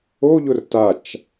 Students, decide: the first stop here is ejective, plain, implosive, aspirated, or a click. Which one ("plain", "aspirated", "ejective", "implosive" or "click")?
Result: plain